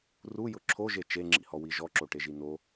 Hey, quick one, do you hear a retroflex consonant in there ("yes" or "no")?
yes